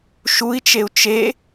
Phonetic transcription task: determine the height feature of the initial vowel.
high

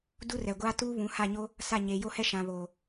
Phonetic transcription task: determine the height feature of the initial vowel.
high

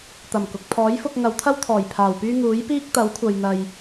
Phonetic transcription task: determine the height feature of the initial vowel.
low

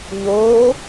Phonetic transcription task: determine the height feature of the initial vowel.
mid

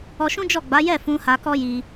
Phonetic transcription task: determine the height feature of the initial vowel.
mid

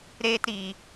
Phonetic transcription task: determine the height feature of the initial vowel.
mid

